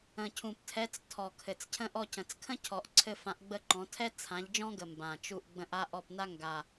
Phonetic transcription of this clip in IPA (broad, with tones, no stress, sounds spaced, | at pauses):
ə̃˨˩ cʰ ũ˨˩ p tʰ ɛ˨˦ t͡s tʰ ɔ˨˩ kʰ ɘ˨˩ t͡s cʰ ə̃˥ ʔ ɔ˦˨ c ə̃˨˩ t͡s kʰ ə̃˥ cʰ ɔ˨˩ ʔ ǀʰ ɘ˦˨ f ã˨˦ ʔ ɡ͡b ə˦˨ ǃ ɔ̃˨˦ tʰ ɛ˥ t͡sʰ ã˨˦ ʎ d͡ʒ ɔ̃˥ ɡ ə˨˩ m b ã˨˩ t͡ʃ u˦˨ ʔ ɡ͡b ə̃˦˨ ʔ a˥ ʔ ɔ˦˨ p n a˥ ŋ ɡ a˦˨